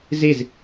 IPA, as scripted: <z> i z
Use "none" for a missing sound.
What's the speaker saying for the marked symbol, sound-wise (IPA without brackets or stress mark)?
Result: z